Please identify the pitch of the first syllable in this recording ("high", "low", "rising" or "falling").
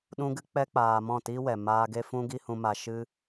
high